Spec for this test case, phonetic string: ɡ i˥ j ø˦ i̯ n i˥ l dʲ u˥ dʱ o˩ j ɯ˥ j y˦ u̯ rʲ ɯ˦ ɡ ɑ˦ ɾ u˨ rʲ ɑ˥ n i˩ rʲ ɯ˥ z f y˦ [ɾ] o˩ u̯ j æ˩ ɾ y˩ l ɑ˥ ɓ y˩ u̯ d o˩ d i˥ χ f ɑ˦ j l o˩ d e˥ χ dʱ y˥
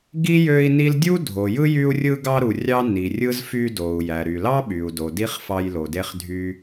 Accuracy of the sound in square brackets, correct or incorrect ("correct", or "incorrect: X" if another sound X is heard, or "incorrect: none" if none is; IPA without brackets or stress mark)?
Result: incorrect: d